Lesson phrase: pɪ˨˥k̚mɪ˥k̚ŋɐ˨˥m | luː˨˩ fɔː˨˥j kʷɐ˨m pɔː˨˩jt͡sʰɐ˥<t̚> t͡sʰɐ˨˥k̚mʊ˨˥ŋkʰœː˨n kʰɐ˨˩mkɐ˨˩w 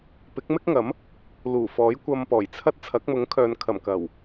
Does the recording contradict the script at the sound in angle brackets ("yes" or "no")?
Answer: no